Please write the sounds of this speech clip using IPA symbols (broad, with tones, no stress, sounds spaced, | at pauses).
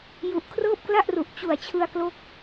j u˨˩ ʔ kʰ r ɤː˥˩ p̚ k l a˥˩ ʔ r u˨˩ ʔ t͡ɕ u˨˩ a̯ t͡ɕʰ ɯ˧ a̯ k l o˦˥ k̚